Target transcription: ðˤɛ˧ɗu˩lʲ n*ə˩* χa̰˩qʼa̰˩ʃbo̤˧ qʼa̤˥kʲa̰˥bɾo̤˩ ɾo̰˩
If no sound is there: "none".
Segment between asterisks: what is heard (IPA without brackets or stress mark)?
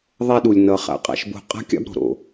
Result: ʌ˩